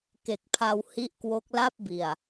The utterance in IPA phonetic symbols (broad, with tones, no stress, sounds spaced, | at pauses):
k e˨˩ k̚ pʰ a˧ w h i˦˥ ʔ k w o˦˥ k̚ l a˥˩ p̚ b i˨˩ a̯